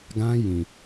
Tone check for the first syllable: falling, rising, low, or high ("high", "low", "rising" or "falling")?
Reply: high